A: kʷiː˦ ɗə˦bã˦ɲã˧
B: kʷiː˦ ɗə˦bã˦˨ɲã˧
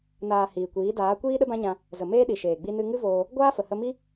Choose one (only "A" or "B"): A